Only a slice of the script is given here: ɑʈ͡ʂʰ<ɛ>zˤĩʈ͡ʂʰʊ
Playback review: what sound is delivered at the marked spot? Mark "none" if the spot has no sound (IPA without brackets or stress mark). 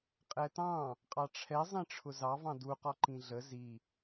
ɛ